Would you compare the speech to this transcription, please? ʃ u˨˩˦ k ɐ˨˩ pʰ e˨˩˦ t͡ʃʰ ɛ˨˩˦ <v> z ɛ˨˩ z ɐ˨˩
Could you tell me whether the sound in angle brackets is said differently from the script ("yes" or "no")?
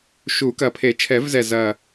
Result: no